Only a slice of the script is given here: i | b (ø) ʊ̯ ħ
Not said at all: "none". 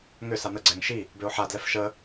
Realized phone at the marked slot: ø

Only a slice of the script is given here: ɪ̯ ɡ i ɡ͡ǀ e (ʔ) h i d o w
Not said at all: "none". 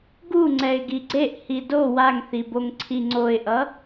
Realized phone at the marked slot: ʔ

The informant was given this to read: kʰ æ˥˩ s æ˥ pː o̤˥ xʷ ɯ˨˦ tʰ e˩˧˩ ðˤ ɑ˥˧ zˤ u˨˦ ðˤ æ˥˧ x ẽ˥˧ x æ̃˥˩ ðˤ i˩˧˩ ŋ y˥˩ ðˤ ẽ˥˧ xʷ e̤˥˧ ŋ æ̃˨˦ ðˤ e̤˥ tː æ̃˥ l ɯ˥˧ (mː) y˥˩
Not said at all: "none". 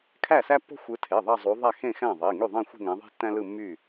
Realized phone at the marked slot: mː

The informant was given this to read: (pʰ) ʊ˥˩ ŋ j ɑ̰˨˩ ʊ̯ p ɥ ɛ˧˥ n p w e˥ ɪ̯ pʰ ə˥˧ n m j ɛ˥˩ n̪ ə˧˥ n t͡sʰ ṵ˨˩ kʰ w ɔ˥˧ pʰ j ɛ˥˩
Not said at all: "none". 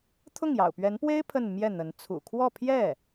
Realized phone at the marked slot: t̪ʰ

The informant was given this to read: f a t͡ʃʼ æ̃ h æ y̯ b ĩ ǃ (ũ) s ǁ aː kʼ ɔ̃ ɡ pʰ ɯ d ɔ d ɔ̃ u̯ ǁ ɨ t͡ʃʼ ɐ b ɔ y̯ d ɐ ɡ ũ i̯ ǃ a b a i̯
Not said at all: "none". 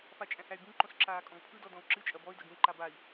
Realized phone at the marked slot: õ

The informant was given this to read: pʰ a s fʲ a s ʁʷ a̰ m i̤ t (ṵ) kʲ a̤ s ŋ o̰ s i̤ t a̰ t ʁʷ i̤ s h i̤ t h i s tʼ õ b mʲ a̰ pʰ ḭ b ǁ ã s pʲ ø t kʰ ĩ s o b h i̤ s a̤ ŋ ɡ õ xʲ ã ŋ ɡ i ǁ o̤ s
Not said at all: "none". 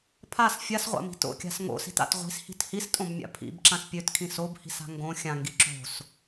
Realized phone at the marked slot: o̰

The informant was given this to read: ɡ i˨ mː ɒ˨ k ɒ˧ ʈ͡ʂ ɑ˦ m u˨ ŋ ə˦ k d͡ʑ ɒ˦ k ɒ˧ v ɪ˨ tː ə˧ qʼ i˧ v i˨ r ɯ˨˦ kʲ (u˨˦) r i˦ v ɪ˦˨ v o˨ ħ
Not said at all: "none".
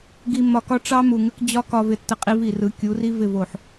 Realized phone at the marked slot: u˨˦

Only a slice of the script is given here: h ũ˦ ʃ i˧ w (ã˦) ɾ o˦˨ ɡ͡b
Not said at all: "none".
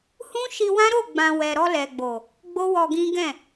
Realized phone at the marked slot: ã˦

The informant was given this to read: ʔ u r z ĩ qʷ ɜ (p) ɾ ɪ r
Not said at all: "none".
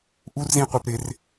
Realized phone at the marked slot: p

